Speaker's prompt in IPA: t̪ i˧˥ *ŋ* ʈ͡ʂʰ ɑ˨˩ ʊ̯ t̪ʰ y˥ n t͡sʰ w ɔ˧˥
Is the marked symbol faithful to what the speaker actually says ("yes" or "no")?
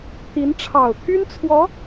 no